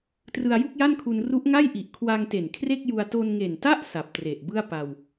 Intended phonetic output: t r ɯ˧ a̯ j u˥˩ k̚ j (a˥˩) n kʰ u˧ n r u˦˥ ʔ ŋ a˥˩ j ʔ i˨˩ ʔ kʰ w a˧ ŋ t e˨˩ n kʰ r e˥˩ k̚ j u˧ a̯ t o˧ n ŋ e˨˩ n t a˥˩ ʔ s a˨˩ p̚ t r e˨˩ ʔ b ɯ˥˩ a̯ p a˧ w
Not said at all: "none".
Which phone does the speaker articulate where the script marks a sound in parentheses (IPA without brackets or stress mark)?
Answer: a˥˩